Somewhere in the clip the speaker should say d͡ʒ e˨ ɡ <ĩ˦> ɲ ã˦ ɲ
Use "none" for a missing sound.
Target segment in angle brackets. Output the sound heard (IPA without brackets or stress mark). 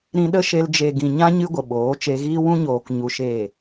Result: ĩ˨